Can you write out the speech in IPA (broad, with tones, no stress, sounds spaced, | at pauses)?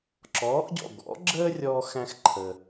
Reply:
ǁ ɔː˩˥ ʔ ɟ ɔ̰˥˩ ɡ ɔ̰˩˥ ɡ͡ǁ əː˥ rʲ ɔː˥ x æ̃˥ x ǃʰ əː˩